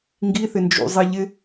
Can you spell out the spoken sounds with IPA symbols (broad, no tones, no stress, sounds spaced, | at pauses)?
ŋ ɡ i θ ɪ n d͡ʒ ṵ zˤ i ʎ ɪ